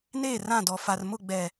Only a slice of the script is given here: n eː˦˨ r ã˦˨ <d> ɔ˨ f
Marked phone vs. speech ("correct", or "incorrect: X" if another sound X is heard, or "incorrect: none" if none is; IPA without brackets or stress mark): correct